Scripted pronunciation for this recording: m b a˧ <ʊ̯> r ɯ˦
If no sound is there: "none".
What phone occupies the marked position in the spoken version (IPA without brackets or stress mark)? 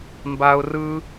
ʊ̯